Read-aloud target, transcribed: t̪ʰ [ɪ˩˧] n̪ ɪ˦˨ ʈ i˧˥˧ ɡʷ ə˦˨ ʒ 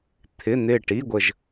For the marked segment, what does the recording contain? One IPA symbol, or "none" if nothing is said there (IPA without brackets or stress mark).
ɪ˧˥˧